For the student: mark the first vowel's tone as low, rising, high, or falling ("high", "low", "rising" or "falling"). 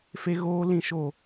high